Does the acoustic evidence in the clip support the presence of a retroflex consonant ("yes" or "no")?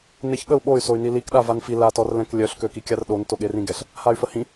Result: no